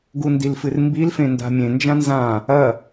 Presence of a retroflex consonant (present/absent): absent